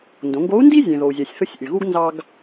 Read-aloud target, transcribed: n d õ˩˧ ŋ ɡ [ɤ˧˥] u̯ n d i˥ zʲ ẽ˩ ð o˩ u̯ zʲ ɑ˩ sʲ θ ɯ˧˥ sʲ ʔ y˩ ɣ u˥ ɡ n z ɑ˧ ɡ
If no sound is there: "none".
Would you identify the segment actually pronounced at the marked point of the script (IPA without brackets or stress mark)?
o˧˥